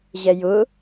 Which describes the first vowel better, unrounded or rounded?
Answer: unrounded